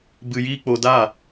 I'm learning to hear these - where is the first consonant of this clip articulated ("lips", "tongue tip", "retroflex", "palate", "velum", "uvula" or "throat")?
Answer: lips